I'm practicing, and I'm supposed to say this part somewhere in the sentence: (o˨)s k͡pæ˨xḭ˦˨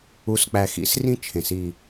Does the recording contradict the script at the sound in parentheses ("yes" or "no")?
yes